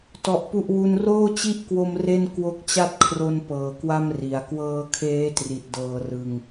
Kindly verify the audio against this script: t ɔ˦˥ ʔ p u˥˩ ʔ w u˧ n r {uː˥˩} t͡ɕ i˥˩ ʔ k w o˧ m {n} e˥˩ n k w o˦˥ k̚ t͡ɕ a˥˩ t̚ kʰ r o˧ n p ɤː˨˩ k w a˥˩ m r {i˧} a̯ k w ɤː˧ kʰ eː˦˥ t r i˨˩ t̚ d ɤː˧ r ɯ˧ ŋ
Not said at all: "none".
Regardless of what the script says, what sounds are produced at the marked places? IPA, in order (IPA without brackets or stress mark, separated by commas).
oː˥˩, r, i˩˦